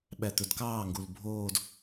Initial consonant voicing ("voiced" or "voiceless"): voiced